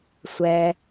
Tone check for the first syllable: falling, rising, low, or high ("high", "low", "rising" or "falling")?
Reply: low